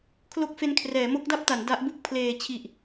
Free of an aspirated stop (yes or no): no